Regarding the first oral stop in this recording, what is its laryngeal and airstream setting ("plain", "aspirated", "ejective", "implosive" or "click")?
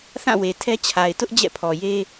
aspirated